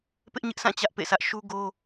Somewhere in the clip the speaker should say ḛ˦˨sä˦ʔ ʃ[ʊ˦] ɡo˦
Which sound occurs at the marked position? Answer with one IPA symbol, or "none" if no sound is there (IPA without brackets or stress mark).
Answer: u˦